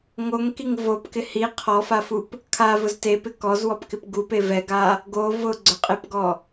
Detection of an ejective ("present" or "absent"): present